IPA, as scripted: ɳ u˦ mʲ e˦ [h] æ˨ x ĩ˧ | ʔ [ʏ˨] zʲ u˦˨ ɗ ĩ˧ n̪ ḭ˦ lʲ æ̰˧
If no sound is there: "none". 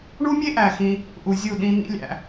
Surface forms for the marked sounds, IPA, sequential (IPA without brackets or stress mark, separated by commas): ʔ, u˨